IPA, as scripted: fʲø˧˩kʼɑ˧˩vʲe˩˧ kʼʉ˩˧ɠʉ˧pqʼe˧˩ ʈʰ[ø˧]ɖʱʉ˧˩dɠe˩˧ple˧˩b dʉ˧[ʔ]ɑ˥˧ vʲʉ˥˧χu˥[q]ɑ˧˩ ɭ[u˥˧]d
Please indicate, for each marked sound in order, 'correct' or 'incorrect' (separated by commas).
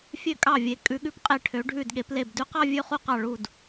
incorrect, incorrect, correct, incorrect